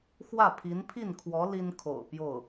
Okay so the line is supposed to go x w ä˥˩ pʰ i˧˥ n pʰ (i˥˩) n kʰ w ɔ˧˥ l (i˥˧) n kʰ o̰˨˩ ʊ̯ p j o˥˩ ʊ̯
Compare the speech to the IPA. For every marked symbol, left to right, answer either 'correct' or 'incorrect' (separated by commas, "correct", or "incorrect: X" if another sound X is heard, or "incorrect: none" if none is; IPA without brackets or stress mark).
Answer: correct, incorrect: i˥